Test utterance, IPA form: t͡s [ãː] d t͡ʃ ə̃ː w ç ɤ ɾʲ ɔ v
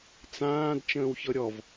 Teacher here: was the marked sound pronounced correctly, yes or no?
yes